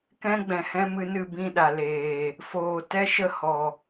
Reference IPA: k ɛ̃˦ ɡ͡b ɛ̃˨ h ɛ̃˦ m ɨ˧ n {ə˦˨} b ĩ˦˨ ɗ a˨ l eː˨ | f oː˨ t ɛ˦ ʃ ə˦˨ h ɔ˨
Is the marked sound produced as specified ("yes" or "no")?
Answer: no